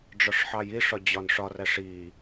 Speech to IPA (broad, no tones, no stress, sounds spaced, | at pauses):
ɖ͡ʐ ɒ ʂ ħ ɑ j i ʂ ɒ d͡ʑ ɒ n ʂ ɒ r æ ʂ i